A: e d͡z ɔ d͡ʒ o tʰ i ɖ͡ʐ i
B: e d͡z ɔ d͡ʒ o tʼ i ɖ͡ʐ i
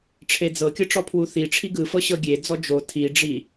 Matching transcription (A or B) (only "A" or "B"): A